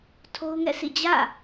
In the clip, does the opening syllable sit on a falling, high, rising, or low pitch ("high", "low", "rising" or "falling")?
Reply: high